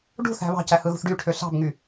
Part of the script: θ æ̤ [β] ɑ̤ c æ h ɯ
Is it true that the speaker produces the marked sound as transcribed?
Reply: yes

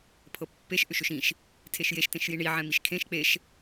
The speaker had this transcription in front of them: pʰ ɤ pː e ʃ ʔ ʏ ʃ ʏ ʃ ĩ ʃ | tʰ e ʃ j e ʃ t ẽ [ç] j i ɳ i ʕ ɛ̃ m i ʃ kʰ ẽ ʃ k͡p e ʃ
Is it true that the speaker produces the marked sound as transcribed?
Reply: no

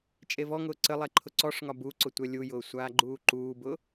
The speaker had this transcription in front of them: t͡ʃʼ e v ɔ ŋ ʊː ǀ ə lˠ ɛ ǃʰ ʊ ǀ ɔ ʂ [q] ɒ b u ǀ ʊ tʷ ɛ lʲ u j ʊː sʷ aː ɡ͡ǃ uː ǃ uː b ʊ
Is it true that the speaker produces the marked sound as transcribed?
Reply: no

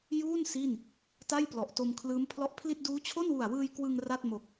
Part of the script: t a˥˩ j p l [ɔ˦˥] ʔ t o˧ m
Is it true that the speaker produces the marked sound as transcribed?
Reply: no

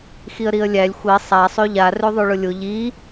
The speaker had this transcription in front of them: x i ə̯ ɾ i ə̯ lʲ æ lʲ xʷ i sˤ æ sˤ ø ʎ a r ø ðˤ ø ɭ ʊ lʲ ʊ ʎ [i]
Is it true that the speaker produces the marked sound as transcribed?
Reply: yes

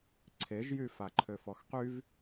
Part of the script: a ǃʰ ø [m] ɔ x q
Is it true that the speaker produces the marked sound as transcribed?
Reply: no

